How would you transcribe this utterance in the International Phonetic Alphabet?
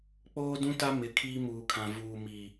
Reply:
k͡poː˦ dũ˦ta˦ mɪ˨˦kʰiː˦muː˨kʰã˨ vuː˨mi˨

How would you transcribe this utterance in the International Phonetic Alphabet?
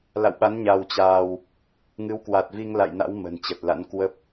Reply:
la̰˧˨wɓa˨˦n ɲa˧wt͡ɕaː˧w | ŋɨ˨˦wkwa˨˩t̚vi˧ŋ la̰˧˨jna̰˧˥w mə̤˨˩nt͡ɕə˨˩t̚la̰˧˥n kwə˦˥p̚

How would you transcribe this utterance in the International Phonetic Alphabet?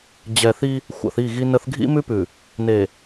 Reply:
d͡ʑɛ˨θi˦ | xʷa̰˨θi˦˨ ɣi˦ nə˦θ ɡʱḭ˦mʉ˦pʉ˨ | ne˨

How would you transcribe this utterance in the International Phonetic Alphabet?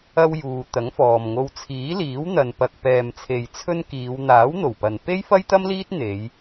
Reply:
ɐ˧wjuː˨ t̪ɐ˨˥ŋfɔː˨mŋo˧w t͡sʰiː˨˥liː˨˥wn̪ɐ˨npɐ˨k̚ pɛː˨mt͡sʰe˨jt͡sʰɵ˧n kiː˨˧w n̪aː˨˥wn̪o˨˩wpɐ˨n pe˥jfɐ˥jt̪ɐ˥mliː˥t̚ n̪e˨˧j

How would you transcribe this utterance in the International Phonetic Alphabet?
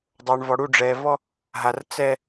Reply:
dˤo˨ɳvɔ˨ ɽu˦˨ɖ͡ʐɛ˨vɔ˦ | ɦa˨r t͡sɛ˦

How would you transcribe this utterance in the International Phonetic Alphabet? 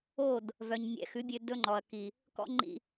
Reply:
o˦˨d | vœ˨ɲnʲɛ̰˨˦xʉ˨˦bʲø˧ dɵ˦ŋ͡ǃɔ˨ɐ̯ki˨ | kɔ̰˦ŋ͡ǃḭ˧

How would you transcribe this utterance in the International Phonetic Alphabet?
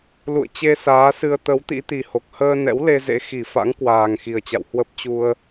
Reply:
lṵ˧˨ə̯t͡ɕe˧ saː˨˦sɨ˧ə̯ t̪ə˨˦w t̪ḭ˧˥t̪i˨˩ho˨˩k̚ həː˧nɛ̰˧˥w le˧zḛ˧˥ xi˧˩fa̰˧˥ŋ kwaː˨˩ŋxi˨˩ə̯t͡ɕa̰˧˨w hwə˦˥p̚t͡ɕu˧ə̯

